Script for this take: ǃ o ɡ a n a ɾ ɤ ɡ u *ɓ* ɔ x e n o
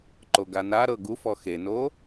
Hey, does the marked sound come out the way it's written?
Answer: no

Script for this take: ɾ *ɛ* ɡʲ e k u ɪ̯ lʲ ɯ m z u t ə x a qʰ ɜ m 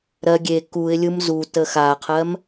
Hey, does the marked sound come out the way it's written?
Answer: no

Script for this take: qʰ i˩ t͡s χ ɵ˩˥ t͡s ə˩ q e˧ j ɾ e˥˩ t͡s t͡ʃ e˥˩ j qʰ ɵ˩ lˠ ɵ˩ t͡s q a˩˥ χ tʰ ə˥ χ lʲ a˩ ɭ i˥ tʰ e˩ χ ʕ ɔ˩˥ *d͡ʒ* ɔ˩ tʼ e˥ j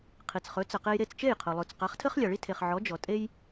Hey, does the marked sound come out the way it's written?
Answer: yes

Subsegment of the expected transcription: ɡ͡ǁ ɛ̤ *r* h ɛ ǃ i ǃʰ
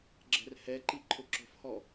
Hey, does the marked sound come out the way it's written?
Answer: yes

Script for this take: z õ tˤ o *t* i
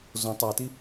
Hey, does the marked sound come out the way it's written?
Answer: yes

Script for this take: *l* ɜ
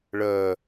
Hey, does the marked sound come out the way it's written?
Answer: no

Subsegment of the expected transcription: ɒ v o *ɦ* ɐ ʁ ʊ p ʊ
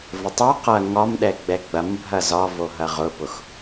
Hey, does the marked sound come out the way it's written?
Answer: yes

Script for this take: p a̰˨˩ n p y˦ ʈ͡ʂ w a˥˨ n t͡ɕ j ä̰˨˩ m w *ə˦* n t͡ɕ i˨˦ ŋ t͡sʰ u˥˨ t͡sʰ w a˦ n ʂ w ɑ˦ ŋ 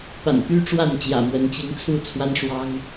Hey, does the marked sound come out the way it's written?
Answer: no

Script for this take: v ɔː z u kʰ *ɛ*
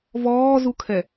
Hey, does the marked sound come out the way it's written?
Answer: yes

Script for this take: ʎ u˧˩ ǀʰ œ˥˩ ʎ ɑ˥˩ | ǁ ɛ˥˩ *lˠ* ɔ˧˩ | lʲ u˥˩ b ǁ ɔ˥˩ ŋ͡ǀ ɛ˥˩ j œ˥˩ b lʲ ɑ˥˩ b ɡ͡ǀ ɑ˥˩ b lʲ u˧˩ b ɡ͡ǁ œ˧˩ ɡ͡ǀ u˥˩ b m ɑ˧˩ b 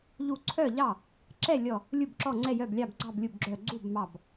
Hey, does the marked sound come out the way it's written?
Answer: no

